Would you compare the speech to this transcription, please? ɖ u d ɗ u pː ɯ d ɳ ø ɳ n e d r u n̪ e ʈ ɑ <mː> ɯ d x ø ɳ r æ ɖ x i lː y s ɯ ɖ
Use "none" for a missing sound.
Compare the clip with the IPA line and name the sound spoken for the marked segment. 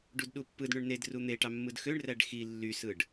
mː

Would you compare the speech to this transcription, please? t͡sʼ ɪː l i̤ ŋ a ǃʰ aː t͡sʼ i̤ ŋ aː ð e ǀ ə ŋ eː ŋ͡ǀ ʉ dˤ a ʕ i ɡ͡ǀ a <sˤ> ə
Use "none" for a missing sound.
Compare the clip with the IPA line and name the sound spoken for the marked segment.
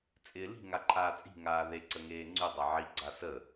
s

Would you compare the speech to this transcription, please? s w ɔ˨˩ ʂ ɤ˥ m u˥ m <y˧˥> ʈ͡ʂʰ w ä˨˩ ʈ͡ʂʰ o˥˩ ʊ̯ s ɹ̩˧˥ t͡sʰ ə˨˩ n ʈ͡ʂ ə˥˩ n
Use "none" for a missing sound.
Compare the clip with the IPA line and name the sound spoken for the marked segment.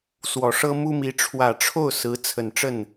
i˧˥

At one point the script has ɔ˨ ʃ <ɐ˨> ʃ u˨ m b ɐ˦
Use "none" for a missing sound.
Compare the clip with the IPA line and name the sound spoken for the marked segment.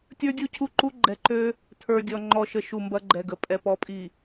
ə˨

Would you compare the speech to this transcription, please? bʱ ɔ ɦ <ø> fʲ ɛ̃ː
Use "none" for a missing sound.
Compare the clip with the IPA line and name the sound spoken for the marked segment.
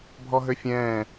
ø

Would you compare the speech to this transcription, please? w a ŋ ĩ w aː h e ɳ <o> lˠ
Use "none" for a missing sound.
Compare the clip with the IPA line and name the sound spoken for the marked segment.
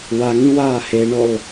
o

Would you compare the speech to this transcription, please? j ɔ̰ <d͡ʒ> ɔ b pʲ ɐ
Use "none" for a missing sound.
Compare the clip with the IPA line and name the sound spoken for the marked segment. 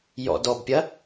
d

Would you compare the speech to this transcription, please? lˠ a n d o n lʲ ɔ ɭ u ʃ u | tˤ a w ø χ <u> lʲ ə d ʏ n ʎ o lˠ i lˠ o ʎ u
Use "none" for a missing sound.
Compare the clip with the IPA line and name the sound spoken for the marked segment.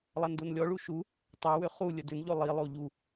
u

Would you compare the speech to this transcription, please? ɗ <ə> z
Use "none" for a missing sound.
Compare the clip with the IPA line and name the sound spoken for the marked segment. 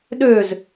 ø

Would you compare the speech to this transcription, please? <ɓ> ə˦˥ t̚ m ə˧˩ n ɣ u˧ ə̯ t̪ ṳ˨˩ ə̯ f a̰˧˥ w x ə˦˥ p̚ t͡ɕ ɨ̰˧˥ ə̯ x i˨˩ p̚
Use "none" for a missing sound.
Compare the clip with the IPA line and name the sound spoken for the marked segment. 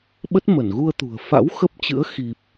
ɓ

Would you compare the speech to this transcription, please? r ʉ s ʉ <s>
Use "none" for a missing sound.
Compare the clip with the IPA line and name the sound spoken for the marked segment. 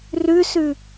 none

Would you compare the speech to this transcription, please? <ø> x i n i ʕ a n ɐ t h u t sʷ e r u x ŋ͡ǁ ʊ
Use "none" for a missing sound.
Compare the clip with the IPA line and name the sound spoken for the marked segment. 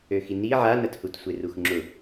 ø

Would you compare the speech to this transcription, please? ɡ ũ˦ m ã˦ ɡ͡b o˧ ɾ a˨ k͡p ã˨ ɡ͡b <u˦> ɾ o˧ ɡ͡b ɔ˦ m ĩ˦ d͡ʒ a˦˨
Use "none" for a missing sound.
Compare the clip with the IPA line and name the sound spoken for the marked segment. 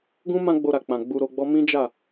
u˧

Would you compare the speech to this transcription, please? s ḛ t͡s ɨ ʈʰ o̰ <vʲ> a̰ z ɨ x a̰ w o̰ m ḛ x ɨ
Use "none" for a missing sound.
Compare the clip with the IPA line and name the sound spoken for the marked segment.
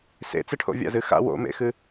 vʲ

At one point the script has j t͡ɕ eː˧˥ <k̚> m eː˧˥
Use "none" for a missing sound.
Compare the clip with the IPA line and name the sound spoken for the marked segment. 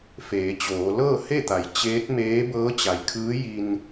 t̚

